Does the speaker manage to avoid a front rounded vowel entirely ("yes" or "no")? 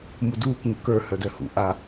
no